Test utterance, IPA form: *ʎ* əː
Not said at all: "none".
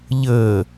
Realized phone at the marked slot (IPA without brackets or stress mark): ʎ